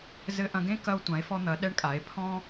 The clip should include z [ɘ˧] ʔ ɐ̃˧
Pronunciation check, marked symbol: correct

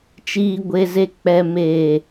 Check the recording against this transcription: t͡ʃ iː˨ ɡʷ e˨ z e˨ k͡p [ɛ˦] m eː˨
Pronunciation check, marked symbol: incorrect: ɛ˨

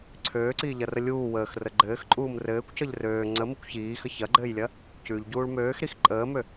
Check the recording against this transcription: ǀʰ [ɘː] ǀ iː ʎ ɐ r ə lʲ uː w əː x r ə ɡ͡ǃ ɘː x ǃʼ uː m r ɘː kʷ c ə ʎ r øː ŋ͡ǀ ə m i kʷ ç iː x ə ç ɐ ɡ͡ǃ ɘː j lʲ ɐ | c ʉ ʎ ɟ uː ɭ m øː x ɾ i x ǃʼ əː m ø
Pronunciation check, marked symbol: incorrect: øː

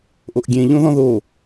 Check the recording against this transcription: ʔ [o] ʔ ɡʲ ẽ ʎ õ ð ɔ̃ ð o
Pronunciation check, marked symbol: correct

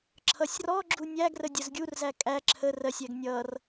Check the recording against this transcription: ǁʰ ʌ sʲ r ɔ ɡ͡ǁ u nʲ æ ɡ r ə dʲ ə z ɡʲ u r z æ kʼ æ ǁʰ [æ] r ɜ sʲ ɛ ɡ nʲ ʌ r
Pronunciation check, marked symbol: incorrect: ə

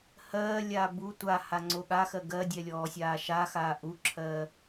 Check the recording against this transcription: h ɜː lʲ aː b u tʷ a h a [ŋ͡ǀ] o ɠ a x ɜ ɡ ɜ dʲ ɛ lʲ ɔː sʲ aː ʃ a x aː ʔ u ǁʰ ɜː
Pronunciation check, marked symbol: correct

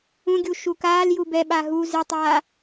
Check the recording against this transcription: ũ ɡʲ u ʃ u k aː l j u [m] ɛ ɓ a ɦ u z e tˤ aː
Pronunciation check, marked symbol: incorrect: b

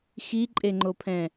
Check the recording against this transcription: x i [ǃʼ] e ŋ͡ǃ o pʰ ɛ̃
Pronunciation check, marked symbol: correct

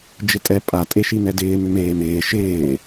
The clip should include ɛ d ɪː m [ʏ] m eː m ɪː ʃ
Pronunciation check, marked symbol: correct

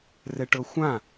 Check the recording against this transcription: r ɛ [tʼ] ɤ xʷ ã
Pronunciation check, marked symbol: incorrect: ʈ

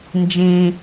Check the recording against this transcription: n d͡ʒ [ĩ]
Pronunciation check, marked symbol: correct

